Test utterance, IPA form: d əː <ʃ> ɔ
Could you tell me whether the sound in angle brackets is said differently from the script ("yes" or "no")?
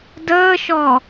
no